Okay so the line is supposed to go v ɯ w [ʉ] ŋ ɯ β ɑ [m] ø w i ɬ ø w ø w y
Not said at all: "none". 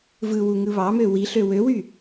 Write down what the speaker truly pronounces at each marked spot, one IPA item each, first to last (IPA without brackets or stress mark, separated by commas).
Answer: u, m